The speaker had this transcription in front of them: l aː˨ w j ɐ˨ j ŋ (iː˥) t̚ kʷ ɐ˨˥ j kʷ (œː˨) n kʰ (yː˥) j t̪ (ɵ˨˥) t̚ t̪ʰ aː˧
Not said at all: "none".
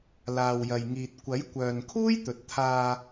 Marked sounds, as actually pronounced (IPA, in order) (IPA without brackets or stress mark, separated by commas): iː˨, œː˨, uː˥, ɵ˨